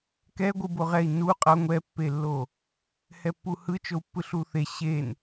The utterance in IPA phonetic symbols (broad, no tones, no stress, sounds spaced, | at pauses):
k ɛ ɡʷ ɯ b o ʁ ɛ i̯ n u qʼ ʌ ŋʷ ɛ pː e lː o | h ɛ pː u h ɯ t͡ʃ o u̯ pː ɯ ɬ u θ e ɕ e n